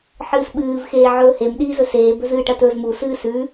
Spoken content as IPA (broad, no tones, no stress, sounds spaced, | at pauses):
ħ ɨː s ɓ ɨː v x eː ʕ ɵː h e m ɗ iː z ɵ s eː b ɵ z ɨː ʈ ɐ t ɵ z m u s ɨː s ʉ